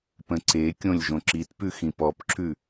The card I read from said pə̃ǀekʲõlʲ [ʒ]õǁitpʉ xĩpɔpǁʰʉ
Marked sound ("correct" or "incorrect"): correct